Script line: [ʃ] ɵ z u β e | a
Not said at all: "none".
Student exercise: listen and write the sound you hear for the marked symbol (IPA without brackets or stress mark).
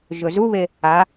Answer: ʒ